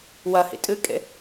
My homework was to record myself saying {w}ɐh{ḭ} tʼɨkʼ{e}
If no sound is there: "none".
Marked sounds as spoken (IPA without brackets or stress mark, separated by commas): w, ḭ, ḛ